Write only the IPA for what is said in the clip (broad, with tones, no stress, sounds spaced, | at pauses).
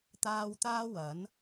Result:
t̪ aː˧ w t̪ aː˥ w ɐ˨˥ n